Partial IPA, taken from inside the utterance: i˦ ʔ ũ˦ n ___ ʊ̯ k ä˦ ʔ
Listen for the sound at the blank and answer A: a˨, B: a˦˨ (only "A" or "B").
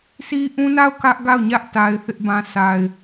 B